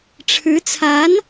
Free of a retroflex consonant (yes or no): no